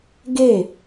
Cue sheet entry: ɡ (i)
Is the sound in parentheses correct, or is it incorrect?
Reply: incorrect